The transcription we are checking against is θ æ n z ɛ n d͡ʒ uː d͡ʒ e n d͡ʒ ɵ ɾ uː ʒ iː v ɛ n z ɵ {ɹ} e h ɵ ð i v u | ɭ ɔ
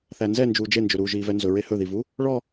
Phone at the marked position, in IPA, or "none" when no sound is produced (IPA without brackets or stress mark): ɹ